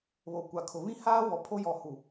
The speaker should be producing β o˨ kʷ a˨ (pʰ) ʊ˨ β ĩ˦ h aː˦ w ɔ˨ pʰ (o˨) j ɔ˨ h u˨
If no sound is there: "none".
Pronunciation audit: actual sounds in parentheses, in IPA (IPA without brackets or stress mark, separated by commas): kʰ, o˦